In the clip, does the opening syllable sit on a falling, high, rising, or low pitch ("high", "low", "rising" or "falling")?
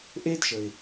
high